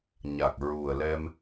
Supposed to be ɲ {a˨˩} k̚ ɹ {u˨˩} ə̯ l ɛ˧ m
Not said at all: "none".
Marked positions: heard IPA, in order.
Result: a˨˩, u˨˩

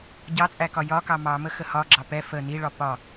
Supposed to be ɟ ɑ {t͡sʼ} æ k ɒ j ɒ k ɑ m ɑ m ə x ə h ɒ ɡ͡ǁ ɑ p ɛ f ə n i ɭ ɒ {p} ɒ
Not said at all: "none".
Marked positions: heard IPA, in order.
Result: t͡sʼ, p

